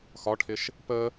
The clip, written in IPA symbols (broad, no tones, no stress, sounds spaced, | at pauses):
x ɒ ʈʰ ɪ ʃ | p ə